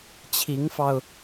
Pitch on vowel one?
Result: rising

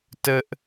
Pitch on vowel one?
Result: high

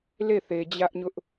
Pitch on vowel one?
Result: falling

